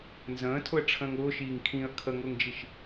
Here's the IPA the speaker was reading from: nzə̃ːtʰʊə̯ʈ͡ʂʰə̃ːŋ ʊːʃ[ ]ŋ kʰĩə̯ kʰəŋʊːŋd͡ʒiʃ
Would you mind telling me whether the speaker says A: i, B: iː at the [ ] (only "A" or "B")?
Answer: B